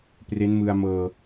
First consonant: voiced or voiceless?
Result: voiceless